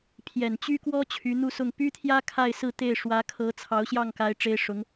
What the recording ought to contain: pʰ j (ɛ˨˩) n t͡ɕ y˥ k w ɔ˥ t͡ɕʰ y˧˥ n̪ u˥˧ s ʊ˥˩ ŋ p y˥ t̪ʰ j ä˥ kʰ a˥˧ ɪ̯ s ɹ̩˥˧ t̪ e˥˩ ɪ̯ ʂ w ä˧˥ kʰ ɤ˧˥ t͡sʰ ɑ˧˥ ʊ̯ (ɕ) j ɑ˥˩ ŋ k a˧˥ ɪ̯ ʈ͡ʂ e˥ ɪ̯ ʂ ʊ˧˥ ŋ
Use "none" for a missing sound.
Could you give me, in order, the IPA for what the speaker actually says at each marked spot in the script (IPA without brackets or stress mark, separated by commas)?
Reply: ɛ˨˩, ɕ